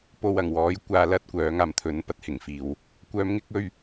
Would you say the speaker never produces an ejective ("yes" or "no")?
yes